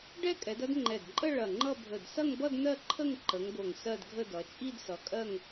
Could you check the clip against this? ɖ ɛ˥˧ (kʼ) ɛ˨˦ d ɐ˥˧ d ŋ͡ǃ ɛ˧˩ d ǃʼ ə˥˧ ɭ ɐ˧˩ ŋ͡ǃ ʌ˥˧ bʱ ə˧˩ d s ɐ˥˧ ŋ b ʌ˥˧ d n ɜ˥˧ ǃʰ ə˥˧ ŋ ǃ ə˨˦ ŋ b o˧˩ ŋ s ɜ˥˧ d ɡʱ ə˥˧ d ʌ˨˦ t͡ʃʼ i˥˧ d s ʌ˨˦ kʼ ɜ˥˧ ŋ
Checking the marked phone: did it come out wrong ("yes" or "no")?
no